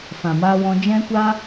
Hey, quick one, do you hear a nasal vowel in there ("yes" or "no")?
yes